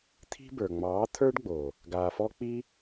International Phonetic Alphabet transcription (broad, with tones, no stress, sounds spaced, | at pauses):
t̪ʰ i̤˦ b ə˞˨ ŋ͡m ɑː˨˦ t̪ʰ ə˞˦ ɖ ɡ͡b oː˨ | ɡ aː˨ f ɔ˧ k͡p i˦